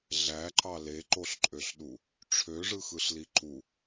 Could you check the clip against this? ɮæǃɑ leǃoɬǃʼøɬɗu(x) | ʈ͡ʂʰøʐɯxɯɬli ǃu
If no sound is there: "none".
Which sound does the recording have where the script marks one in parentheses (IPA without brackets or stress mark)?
none